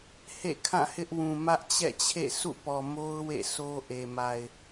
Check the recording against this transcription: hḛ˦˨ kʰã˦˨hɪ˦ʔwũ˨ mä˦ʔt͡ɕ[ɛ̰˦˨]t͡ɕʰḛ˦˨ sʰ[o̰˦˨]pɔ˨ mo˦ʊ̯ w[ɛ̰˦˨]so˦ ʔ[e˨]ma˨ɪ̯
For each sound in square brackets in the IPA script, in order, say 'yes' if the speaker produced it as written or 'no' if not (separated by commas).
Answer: yes, no, no, yes